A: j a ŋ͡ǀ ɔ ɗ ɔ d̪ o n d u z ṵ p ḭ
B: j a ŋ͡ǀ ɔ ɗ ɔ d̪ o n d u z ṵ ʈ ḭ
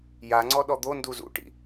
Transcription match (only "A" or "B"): B